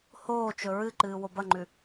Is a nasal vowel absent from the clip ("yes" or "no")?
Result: yes